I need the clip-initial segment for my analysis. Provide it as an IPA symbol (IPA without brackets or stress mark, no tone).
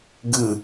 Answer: ɡ